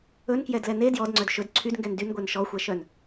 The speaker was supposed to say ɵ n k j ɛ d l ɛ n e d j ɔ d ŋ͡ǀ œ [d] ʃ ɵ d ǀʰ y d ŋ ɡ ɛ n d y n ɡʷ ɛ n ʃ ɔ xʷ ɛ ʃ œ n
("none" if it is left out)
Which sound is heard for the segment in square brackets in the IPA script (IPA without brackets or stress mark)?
d